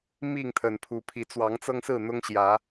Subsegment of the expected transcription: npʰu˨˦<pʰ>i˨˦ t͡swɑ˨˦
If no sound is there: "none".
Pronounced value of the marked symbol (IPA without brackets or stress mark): pʰ